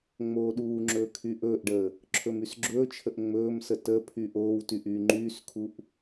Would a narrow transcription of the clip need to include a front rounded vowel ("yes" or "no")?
yes